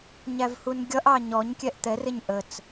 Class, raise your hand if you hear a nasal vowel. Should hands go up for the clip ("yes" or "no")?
no